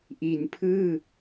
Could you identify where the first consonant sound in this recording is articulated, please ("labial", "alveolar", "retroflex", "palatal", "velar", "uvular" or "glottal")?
glottal